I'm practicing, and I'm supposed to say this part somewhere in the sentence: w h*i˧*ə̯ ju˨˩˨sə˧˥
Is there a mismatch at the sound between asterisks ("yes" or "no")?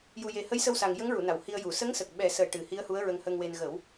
no